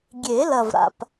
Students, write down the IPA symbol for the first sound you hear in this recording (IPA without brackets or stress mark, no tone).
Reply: ɡʲ